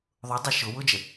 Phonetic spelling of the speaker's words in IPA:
ðˤ ʊ dˤ ɑ ʃ ʊ w ʊ d͡ʒ ə

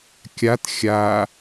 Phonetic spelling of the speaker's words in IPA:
kʲ a t xʲ a

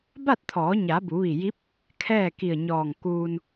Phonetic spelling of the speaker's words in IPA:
b a˥˨ t̚ t̪ʰ ɔː˩˧ ɲ a˩˧ b u˩˧ ʋ i˧˩ j i˧˥ p̚ | kʰ ɛː˥˨ k i˧˩ ə̯ ɲ ɔː˧˩ ŋ k uː˧ n

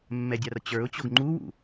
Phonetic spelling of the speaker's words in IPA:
mː ɛ dʲ a r t͡ɕ ə˞ ʊ̯ t͡ɕ o ɡ ŋ͡ǃ u w ṵ

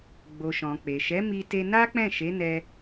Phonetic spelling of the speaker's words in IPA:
ɡ͡b o˨ ʃ ɔ̃˨ k͡p e˨ ʃ ɛ˨˦ m i˧ t e˧ n a˦ k͡p ɛ̃˦˨ ʃ e˨˦ n ɛ˦

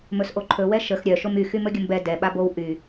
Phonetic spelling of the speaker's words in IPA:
m ɵ s ʔ o ǃʰ ɵ w ɛ ʃ ə x ɾʲ œ ʃ o m y x y m ɵ ɡʲ ə m b ɛ d ɛ ɓ a b o w ʔ y

